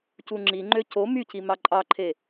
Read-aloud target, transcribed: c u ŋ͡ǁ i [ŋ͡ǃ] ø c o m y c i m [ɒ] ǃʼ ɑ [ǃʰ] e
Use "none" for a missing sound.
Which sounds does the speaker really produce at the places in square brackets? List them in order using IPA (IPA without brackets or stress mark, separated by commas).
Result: ŋ͡ǃ, ɑ, ǃʰ